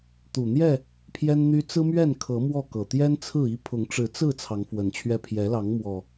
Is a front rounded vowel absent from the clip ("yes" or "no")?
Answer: no